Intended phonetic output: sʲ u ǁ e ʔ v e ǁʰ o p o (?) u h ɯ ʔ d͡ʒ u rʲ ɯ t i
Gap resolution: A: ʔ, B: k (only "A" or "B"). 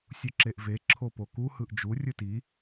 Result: B